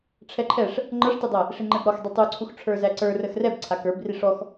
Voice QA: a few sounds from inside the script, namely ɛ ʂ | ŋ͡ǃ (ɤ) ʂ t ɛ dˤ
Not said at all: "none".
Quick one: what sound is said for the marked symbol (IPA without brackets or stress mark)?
ɤ